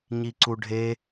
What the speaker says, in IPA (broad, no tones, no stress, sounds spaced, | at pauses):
ɲ i ǀ u ɖʱ e